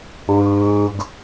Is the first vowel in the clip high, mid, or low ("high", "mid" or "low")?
high